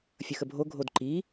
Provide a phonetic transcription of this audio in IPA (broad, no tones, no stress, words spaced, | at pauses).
fʲʌxəbʱo ɡʱodǃi